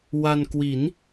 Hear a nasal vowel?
no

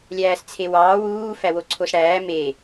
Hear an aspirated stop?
yes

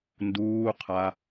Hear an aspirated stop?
yes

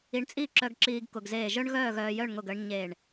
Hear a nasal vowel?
no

